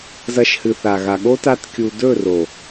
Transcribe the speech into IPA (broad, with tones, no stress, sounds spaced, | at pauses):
z ɐ˧ ʃ h ɨ˨ θ a˨ ɣ a˨ ɠ o˦ t a˦ t kʲ u˧ d ɵ˦˨ r o˨